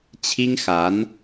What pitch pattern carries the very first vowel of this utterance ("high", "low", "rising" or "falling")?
high